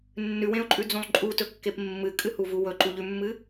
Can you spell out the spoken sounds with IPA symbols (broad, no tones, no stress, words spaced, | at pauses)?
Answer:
nːʉwẽʊ̯ǃʼʉd͡zũlˠ ǃʼutɵkːep mːɨkʼɨhuvu wɵǃuʎʉmːɨ